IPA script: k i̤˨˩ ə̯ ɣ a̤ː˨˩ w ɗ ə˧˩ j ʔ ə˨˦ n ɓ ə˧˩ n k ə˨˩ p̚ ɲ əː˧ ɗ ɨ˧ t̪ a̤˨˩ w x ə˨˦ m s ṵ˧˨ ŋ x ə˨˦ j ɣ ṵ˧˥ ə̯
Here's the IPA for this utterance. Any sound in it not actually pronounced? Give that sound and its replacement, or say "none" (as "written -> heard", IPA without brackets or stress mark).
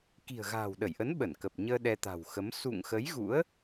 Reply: ɨ˧ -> ɛ˧